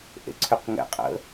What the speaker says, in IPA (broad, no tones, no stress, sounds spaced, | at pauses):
ʔ ḛ ǀʰ ʏ q ŋ ɛ̰ qʼ ə̰